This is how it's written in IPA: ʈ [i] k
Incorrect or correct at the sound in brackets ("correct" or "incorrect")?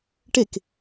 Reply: incorrect